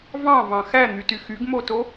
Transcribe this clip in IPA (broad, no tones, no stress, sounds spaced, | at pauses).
v ɑ̃ v ɑ̃ x æ n̪ y t y x y ɡ m o t o